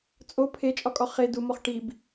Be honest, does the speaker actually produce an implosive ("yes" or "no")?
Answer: no